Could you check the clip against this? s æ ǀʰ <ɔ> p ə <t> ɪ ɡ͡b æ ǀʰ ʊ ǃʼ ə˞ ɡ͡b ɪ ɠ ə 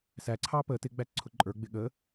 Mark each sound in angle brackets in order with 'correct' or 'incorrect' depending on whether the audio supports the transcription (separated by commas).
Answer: incorrect, correct